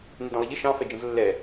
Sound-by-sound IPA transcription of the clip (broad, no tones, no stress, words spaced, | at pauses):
nɪdə̃lˠɪʎɪ ʃɑ̃ fɛd͡ʒə̃zlːɛ